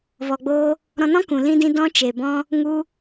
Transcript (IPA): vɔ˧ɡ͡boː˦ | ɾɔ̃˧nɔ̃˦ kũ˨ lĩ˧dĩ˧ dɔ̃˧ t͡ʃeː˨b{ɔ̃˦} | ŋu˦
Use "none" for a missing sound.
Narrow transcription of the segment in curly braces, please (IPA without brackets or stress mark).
ɔ̃˧